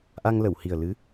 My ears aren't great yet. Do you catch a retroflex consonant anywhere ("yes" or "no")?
no